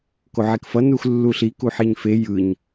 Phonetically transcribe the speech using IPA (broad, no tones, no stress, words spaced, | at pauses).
koʕekfʌ nuxlːuɬi kuħiɲfe jɯɲ